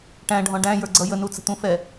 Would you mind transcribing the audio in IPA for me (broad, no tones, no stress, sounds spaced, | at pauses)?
ʈ æ̃ ɖʱ ɔ̃ ɖ æ̃ j ə˞ ɡ͡ǀ ʌ j ə n u t͡s ə̤ t̪ ũ f ɛ